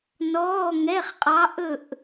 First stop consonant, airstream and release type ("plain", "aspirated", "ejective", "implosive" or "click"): ejective